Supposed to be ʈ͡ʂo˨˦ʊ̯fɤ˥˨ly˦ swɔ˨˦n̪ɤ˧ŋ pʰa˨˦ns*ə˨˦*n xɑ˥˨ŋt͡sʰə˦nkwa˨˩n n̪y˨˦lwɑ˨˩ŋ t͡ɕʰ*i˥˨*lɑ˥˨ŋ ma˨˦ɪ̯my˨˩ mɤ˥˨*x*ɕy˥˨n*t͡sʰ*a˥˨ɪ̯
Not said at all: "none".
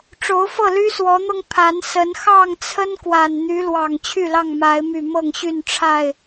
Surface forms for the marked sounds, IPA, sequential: ə˨˦, y˥˨, ŋ, ʈ͡ʂʰ

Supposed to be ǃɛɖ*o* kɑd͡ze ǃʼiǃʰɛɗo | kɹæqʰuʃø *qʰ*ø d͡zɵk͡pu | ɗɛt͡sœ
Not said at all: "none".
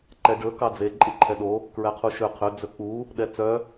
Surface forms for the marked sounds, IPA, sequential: ɵ, qʰ

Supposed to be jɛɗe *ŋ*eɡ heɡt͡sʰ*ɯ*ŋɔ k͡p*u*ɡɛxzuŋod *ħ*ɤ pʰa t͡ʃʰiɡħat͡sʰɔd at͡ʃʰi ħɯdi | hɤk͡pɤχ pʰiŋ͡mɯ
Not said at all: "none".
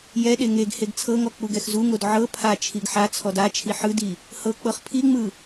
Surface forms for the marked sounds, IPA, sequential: ŋ, ɤ, u, ʕ

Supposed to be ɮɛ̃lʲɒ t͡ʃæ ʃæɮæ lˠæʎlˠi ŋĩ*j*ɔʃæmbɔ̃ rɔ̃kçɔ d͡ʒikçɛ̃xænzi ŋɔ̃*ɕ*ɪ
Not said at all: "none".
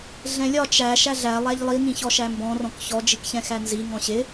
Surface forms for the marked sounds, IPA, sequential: ç, ɕ

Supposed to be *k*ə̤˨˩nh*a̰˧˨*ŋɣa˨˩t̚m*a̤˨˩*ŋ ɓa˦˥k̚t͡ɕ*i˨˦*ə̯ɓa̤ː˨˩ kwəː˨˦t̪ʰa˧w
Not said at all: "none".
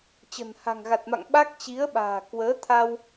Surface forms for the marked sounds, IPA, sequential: t͡ɕ, a̤˨˩, a̰˧˨, i˨˦

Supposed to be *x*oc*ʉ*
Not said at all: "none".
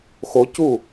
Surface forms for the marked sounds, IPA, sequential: x, u

